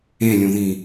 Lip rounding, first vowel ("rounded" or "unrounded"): unrounded